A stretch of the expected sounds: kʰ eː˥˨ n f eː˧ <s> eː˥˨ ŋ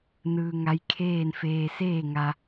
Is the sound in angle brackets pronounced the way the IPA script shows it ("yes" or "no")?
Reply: yes